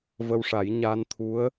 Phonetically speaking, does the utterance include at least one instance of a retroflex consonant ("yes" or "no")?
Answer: yes